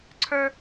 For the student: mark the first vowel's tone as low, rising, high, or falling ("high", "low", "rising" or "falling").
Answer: high